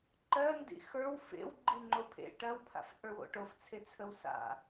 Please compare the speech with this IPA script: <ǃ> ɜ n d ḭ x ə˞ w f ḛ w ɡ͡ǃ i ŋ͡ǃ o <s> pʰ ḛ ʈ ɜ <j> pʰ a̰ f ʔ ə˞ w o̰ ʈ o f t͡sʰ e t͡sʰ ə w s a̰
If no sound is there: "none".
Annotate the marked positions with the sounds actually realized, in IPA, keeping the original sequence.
ǃ, none, w

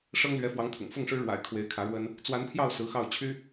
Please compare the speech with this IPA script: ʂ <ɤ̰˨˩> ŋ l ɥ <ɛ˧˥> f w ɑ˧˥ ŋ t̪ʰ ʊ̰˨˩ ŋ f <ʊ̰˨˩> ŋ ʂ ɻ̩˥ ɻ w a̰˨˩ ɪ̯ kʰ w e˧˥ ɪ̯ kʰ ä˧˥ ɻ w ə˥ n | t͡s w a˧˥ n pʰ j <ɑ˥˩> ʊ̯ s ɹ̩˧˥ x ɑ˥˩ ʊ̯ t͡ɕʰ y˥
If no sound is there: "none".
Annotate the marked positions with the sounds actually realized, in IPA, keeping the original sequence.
ɤ˥, ɛ˧˥, ʊ˥˩, ɑ˥˩

